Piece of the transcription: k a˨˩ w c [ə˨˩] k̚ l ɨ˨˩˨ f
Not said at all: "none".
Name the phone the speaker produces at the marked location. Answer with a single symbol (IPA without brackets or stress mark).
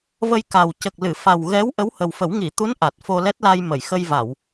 ə˨˩